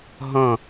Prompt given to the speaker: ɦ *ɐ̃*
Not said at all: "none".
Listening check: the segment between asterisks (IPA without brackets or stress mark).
ɐ̃